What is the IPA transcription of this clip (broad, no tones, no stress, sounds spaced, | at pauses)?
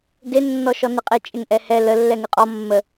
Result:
d e nː ɔ ʃ ɔ n ɪ qʼ ɪ t͡ʃʼ ɪ ŋ ʔ ɛ h ɛ l ə lː ɛ ŋ ɪ qʼ ɔ mː ə